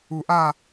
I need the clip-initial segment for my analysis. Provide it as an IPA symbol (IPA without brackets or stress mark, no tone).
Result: u